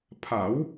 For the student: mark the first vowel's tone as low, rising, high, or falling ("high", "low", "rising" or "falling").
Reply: rising